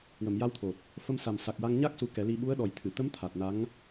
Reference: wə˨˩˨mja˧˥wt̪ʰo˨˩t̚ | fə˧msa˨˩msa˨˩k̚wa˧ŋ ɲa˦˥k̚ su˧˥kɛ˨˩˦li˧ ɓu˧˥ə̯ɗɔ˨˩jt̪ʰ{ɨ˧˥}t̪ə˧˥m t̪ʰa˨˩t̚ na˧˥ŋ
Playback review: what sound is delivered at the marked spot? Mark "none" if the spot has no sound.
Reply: ɨ˨˩˨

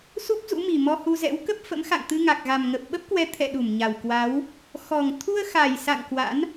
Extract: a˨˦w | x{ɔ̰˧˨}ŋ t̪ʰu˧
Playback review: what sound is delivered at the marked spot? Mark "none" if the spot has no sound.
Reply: ɔ˨˩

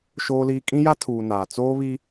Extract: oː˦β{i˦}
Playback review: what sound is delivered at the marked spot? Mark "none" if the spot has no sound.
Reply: i˦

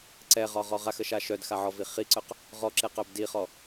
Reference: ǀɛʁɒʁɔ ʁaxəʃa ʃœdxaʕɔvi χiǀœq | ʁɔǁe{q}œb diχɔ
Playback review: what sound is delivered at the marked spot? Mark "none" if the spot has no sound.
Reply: q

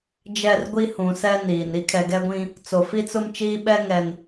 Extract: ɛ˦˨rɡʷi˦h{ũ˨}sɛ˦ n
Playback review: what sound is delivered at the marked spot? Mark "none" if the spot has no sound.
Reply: ũ˨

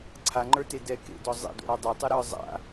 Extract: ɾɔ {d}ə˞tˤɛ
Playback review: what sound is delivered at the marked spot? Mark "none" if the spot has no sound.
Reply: dˤ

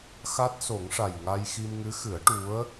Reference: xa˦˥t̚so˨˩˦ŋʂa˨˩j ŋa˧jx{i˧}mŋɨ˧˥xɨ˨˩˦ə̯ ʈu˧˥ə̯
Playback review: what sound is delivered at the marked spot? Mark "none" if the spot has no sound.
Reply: i˧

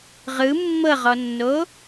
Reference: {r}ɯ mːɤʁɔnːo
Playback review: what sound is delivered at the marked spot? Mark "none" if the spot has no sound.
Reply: ʁ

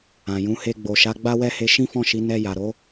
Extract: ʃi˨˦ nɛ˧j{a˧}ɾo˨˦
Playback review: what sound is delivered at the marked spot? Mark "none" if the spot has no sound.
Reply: a˨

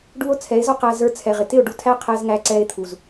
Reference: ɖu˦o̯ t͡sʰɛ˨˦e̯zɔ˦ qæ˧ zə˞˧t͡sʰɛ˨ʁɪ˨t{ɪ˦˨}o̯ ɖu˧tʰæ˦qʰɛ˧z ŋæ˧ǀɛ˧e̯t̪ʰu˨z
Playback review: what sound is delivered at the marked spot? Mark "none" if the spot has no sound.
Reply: ɪ˦˨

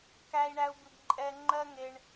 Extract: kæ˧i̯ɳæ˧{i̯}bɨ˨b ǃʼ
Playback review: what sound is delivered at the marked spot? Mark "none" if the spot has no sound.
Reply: u̯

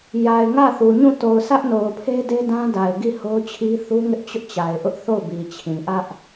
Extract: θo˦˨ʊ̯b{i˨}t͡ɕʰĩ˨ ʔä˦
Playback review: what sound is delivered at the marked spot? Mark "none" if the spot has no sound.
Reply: i˨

